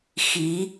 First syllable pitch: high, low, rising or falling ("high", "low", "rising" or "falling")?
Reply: rising